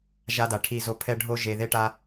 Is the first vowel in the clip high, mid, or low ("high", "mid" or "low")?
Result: low